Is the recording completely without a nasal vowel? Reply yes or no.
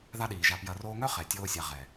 yes